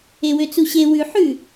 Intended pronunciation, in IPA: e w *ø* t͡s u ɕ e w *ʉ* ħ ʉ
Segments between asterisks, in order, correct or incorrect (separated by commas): correct, correct